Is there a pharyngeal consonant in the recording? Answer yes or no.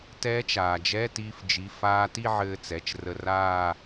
yes